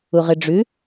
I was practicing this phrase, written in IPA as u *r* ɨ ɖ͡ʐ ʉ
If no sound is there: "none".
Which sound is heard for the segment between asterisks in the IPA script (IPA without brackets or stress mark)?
ʁ